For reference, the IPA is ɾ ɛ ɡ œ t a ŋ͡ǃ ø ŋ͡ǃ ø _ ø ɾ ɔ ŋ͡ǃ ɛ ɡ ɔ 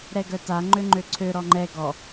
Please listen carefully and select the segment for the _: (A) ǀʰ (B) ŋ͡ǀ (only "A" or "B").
A